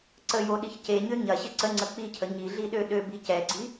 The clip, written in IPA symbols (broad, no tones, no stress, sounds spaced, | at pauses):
ǀ ə j o ɗ i ç c e ɲ ø ɲ ɐ ɕ ɪ ǀ ə ŋ͡ǀ ə k͡p i cʰ ə ɲ i ɮ i ɗ ø ɗ ø b i c ɛ ɡ͡ǀ i